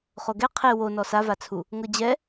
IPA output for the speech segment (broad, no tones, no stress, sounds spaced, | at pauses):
χ o ɡ ɛ qʰ e w o n ɔ s a v a t͡sʰ u | ŋ ɤ d͡ʑ ɛ